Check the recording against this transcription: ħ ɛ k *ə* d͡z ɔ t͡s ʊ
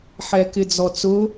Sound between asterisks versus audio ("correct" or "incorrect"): incorrect